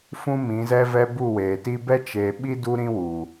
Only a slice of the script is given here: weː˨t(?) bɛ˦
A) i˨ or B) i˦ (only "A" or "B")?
B